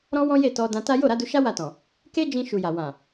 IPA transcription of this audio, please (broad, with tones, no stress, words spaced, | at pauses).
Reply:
ɾɔ̃˦wɔ̃˦ je˦˨tɔ˧dã˧ ta˦ jo˦˨ɾa˨˦du˧ʃa˦ wa˦˨tɔ̃˨ | ke˦d͡ʒĩ˧ ʃu˨ja˨ wã˨